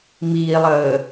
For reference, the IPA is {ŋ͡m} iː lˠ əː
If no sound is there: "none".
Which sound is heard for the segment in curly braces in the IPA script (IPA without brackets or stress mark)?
m